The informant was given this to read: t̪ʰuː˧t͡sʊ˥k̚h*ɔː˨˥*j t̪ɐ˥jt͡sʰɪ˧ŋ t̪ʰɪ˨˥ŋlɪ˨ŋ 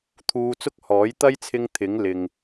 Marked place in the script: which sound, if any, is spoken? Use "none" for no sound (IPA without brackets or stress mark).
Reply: ɔː˨˥